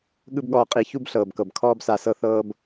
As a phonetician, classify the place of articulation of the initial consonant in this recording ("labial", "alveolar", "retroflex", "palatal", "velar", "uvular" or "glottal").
velar